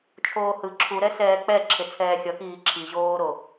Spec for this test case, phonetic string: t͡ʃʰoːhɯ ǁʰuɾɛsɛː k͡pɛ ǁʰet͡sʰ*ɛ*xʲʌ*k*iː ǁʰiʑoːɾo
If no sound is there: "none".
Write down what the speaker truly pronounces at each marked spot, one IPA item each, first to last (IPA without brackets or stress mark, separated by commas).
ɛː, k